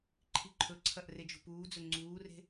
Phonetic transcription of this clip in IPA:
ǃʰ i ǃʰ ɵ ǀʰ ɐ ʔ r e d͡ʒ ṳ p uː d͡z ɵ ŋ͡ǀ uː r e̤

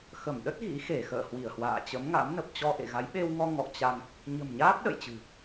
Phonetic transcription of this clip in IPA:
x ə˧˩ m ɗ ə˦˥ t̚ ɣ ḭ˧˥ x e˧˩ x ə̰ː˧˨ h w i˧˩ ə̯ h w a̰ː˧˨ t͡ɕ ə˨˦ m ŋ a̰˧˥ m n ə˨˩ p̚ t͡ɕ ɔ˧ ʔ ḛ˧˨ ɣ a˨˦ j ɓ e˧ w ŋ ɔ˧ ŋ ɔ̰˧˨ t͡ɕ a˧ ŋ | ɲ ə̤˨˩ m ɲ aː˦˥ p̚ ɗ ə̰˧˨ j t͡ɕ ɨ̤˨˩

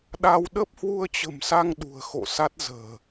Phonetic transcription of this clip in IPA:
ɗ a˧ w ɗ ə˦˥ p̚ h w u˧ ə̯ t͡ɕ ə̤˨˩ m s a˧ ŋ ɗ ṳ˨˩ ə̯ x o̰˧˨ s a˦˥ t̚ z ə̤ː˨˩

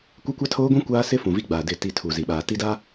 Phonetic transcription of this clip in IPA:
kʷ ɪ˦ kʷ a˦ tʰ oː˦ ɡʷ ĩ˦ kʷ aː˦ s ɪ˦ f ũ˨ v i˦ ɡ͡b aː˨ d ɪ˦˨ t i˦˨ tʰ u˨ z i˨ ɓ aː˨ t i˦ d a˦

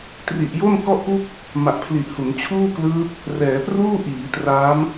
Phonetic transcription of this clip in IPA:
t r i˨˩ ʔ j o˥˩ n k ɔ˥˩ ʔ p u˥˩ k̚ | m a˨˩ ʔ pʰ l i˨˩ ʔ h u˩˦ n t͡ɕʰ uː˥˩ k l ɯː˦˥ p̚ | r ɛː˩˦ p r uː˥˩ ʔ iː˩˦ t r aː˦˥ m

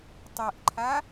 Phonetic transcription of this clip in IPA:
tˤ ɛ ʔ ǃʰ a

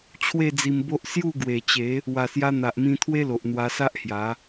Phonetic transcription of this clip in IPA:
t͡ɕʰ w e˥˧ d͡z i˧ m b o˦ ʔ s j u˥˧ ɡ w e˨˩ t͡ɕ e˨˦ | w a˨˩ s j a˧ n̪ a˨ ʔ m ĩ˧ t̪ʰ w e˦ l o˨ ʔ n̪ w a˧ s a˦ ʔ h j a˨˦

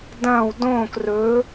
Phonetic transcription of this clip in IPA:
d ɐ̃ː˦˨ w d õː˦˨ k r ɵ˧˥

